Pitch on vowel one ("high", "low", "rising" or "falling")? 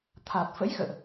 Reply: low